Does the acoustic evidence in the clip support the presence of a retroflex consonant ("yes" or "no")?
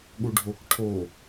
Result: yes